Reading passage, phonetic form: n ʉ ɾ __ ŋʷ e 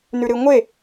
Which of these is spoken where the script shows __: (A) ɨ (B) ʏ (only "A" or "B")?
A